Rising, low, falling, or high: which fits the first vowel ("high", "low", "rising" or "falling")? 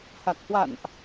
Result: low